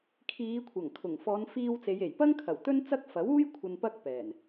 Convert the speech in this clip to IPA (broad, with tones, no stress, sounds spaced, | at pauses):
kʰ iː˨˧ kʷʰ ɐ˨˩ ŋ kʰ ʊ˨˩ ŋ f ɔː˨˧ n f iː˧ w t͡s e˨˧ j e˨˩ j p ɐ˥ ŋ kʰ ɐ˨˩ w t̪ ɵ˥ n t͡s ɐ˥ k̚ f ɐ˨˥ w uː˥ j kʷʰ ɐ˨ n p ɐ˧ k̚ p ɛː˨˩ n